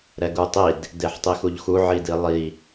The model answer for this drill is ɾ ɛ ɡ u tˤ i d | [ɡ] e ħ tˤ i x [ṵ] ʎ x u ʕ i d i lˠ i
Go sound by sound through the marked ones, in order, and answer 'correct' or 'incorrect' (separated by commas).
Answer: incorrect, incorrect